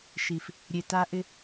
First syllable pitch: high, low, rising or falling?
low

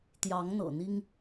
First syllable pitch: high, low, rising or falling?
rising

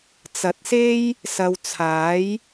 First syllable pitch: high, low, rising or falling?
rising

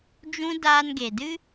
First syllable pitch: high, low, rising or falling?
high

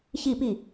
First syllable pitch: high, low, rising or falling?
falling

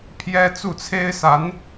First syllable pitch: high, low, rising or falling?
high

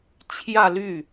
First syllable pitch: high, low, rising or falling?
falling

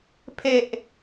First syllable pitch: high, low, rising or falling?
high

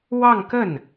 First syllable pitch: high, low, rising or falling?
falling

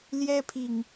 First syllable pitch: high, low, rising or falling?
high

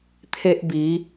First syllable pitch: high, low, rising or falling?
high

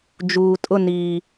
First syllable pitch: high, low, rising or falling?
low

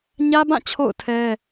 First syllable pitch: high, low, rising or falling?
high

